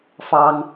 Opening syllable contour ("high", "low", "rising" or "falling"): high